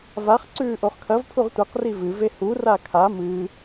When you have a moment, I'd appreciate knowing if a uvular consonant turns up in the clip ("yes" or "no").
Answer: yes